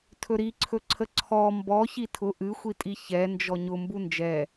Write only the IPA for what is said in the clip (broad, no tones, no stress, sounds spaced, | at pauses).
tʰ ɵ ɾ i ǀʰ ɵ ǀʰ ə ǀʰ ɔ m b ɔ ç i tʰ ʊ ʔ ɨ xʷ i tʼ i ç ɛ n d͡ʒ ɔ ɲ ʊ m b u n d͡ʒ ɛ